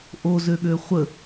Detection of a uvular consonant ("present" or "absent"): present